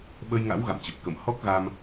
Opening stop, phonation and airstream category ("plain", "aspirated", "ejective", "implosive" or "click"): implosive